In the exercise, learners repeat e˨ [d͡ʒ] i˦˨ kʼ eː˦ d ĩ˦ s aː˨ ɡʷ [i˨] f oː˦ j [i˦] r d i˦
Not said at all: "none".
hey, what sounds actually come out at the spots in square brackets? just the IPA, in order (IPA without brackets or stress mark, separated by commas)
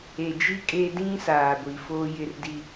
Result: d͡ʒ, i˨, ɪ˦